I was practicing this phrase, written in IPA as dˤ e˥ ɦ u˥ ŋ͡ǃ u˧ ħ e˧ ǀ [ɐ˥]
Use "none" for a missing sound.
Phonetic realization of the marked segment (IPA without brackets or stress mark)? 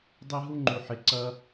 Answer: ɐ˥